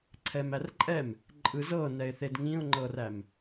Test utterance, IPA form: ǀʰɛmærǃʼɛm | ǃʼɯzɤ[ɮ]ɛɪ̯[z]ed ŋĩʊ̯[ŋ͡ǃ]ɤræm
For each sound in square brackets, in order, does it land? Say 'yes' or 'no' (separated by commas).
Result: no, no, yes